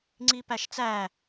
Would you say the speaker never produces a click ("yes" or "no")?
no